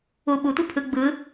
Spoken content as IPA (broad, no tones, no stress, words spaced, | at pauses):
u ɓutʷi pʰɯ ɡ͡bɯ